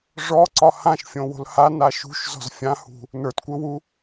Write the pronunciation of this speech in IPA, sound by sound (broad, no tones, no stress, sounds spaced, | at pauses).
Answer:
ʐ ɔ ǀ ɒ h ã ʃ fʲ õ w o̤ l h a n a ʃ ṳ ʃ z ɔ̤ z fʲ ã h ṳ | n ə˞ t kʷ ɘ w u